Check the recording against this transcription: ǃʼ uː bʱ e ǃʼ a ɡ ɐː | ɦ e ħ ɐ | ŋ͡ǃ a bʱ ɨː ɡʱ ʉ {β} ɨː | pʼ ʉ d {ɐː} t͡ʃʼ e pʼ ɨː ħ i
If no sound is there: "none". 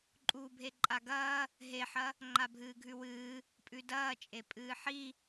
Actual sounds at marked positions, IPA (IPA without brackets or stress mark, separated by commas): w, ɐː